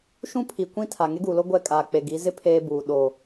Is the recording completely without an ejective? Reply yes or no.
no